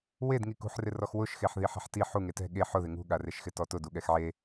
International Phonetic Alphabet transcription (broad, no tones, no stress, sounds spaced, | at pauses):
w e d ŋ i k ṳ ħ r ɪ r ɔ x w ʊ ʃ x e ħ ð i ħ ɛ̤ ħ t i ħ u ŋ e t ɛ̤ ɠ e ħ ʊ ð ɪ ŋ ṳ ɠ a r e ʃ x ɪ t ɔ t ʊ d u ɠ ɛ x ʕ e